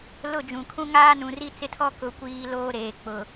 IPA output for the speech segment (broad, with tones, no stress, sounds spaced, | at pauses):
l ʊ˦˨ d͡ʒ ũ˨ kʰ ũ˦ ŋ aː˦ n ũ˨ r i˦ t͡s ɪ˦ tʰ ɔ˦ k ʊ˨ kʷ iː˨ l oː˦ ɾ eː˨ k͡p ʊ˨